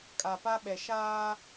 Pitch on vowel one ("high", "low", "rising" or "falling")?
low